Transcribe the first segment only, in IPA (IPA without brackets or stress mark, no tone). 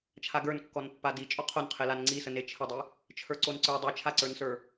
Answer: t͡ʃʰ